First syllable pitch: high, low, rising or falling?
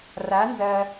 rising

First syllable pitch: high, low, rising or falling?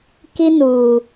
high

